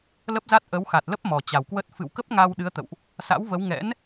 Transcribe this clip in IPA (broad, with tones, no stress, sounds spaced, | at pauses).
l ə˦˥ p̚ z a˦˥ t̚ ʔ ə˨˦ w x a˨˩ t̚ l ə˦˥ p̚ m ɔ˨˩ t͡ɕ a˨˩ w k w ə˦˥ t̚ f ɨ̰˧˨ w k ə˦˥ p̚ ŋ a˧ w ɗ ɨ˨˦ ə̯ t̪ ə̰˧˨ w ʔ | s a̰˧˥ w v ə˨˦ w ŋ ɛ̰˧˥ n